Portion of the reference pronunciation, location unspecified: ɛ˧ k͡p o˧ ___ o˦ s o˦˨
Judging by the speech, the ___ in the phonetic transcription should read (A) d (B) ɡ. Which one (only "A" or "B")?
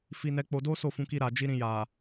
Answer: A